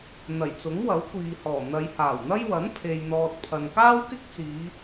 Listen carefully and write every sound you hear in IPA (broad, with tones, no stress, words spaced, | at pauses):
n̪ɐ˨˩jt͡sʊ˨˥ŋwɐ˨˥w kʷiː˨hɔː˨˩ n̪ɐ˨˧jhaː˨˩wn̪ɐ˥j wɐ˨˥n pʰe˨jn̪ɔː˨t̚pʰɐ˨n kaː˥wkɪ˥k̚t͡siː˨˧